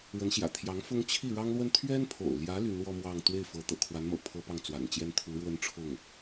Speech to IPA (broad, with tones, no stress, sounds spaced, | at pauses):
ɻ ə˧˥ n ɕ j ä̰˨˩ t̪ʰ j ɑ˧˥ ŋ f ʊ˥ ŋ t͡ɕʰ i˥˩ ɻ ɑ˥ ŋ l w ə˥ n t̪ʰ ɥ ɛ˥ n pʰ o̰˨˩ ʊ̯ l j ä˧˥ l y˧˥ n w ɔ˥ m w ɑ˥˧ ŋ t̪ w e˥˩ ɪ̯ f ɤ˧˥ t̪ ɤ̰˨˩ kʰ w a˧˥ n m ɤ̰˨˩ pʰ ɤ˥ p ɑ˥˩ ŋ t͡s w a̰˨˩ n t͡ɕ j ɛ˥ n t̪ʰ u˧˥ ɻ w ə˥ n ʈ͡ʂʰ ʊ˥˩ ŋ